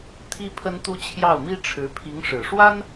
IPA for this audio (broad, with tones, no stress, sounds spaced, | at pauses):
t̪ʰ i˥ pʰ ə˥ n t̪ u˥ t͡ɕʰ j ɑ˥˩ ʊ̯ m i˥ ʈ͡ʂʰ ɻ̩˧˥ pʰ i˧˥ ŋ ʂ ɻ̩˨˩ ʂ w a˥ n